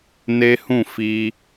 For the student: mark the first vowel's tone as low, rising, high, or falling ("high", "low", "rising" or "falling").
high